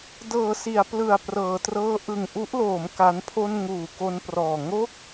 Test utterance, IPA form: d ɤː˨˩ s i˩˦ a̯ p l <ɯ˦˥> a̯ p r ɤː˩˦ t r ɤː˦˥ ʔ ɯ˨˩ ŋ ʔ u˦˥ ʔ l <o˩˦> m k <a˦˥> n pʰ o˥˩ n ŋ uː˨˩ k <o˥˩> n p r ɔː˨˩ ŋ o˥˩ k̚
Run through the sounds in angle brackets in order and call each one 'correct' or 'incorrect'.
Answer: incorrect, incorrect, correct, incorrect

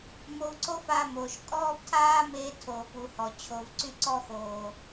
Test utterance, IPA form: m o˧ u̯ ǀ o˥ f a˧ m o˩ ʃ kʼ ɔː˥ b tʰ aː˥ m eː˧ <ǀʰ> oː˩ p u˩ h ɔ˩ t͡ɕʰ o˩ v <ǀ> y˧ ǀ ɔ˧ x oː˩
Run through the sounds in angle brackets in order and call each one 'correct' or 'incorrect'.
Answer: incorrect, correct

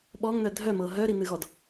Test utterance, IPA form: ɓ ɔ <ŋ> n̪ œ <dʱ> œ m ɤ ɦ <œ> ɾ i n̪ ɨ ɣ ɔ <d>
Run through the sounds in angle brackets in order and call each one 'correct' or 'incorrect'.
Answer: correct, correct, correct, correct

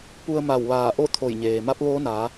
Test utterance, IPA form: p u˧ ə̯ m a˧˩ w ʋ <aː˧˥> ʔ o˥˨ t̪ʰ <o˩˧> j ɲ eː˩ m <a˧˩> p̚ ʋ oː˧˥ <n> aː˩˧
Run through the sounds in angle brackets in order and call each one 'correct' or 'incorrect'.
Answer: incorrect, incorrect, incorrect, correct

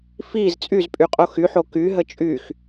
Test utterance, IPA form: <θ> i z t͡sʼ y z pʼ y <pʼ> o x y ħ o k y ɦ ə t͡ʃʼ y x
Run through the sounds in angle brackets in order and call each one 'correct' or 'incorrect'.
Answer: incorrect, incorrect

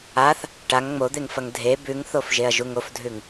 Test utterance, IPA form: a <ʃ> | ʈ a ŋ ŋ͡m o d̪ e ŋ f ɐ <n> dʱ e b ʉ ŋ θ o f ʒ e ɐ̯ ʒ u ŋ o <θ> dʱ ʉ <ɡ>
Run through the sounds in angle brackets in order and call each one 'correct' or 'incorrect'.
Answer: incorrect, incorrect, incorrect, incorrect

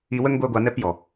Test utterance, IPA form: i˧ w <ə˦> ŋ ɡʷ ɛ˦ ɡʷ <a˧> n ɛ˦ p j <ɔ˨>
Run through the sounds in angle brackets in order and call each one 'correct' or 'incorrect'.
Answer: correct, correct, correct

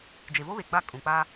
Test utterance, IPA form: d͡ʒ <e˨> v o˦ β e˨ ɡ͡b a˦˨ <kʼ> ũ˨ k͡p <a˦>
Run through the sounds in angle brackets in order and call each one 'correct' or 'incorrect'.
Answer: correct, correct, correct

